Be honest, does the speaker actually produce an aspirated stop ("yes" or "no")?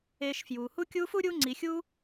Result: no